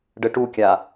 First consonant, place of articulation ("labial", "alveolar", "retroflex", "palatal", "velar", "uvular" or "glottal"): retroflex